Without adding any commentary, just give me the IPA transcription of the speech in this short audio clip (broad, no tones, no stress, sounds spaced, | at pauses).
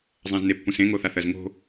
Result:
zˤ ã z n e pː ũ s ẽ ŋ o θ a θ ɜ z ŋ o̤